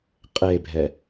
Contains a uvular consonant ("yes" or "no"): yes